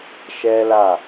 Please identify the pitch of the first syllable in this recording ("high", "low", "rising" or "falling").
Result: high